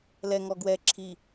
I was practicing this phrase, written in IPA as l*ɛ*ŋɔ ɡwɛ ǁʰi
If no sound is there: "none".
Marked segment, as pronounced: ɛ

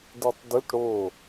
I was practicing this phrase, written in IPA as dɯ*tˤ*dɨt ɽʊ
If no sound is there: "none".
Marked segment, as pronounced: tˤ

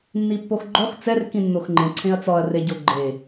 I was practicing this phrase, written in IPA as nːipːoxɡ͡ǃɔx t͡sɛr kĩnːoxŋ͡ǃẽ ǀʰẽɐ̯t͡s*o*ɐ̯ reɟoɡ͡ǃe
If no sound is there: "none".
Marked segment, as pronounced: ɔ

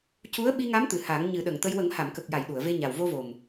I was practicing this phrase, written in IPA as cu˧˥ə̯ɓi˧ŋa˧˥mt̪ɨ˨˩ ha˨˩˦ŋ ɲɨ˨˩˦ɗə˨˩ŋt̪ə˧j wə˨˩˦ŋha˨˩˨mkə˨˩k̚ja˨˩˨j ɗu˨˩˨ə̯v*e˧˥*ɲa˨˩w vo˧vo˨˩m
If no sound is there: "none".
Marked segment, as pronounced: e˧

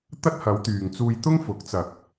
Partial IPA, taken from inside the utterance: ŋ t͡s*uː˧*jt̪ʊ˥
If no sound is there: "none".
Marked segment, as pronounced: uː˧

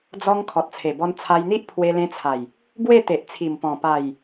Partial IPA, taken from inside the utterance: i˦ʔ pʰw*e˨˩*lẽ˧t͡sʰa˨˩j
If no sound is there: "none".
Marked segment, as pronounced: e˧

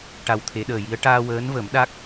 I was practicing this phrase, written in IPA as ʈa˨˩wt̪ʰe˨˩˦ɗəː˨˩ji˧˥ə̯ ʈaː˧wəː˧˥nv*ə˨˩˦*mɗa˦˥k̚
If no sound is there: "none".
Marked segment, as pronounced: ə˨˩˦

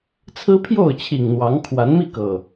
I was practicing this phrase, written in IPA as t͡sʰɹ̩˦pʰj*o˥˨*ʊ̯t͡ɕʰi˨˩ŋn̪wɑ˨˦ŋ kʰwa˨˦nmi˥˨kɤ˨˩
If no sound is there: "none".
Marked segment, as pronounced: o˥˨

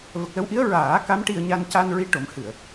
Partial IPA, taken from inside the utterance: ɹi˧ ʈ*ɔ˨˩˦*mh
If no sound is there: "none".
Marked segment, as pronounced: o˨˩˦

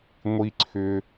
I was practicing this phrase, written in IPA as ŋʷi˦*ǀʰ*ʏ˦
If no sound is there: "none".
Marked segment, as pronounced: ǀʰ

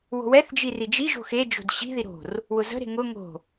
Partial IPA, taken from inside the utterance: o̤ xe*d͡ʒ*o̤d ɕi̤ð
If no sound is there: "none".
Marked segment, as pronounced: d͡ʒ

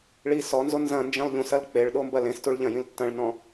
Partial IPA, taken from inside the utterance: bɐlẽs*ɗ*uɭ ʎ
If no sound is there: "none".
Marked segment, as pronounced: t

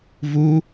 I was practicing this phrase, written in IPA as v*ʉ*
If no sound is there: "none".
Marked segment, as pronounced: u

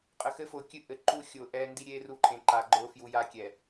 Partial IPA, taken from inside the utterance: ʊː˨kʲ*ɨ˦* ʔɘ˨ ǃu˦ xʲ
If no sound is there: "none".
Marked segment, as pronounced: ɨ˦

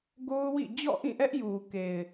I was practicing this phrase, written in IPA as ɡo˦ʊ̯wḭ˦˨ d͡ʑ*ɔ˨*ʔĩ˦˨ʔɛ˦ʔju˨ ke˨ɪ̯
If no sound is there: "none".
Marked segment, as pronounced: ɔ̰˦˨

